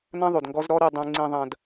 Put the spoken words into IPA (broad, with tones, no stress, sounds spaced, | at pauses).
n ɐ̃˦ ðˤ o˨ d ŋ ɡ ɔ˦ z ɾ ɔ˦ ɾ i˨ dˤ ũ˨ ŋ͡ǀ ĩ˨ ðˤ ɐ̃˨ d